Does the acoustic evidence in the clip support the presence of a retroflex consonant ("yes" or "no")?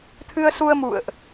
no